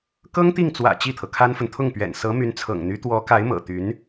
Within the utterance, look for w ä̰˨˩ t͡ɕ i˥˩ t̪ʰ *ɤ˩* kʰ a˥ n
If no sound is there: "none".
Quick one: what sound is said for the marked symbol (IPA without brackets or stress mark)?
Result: ɤ˩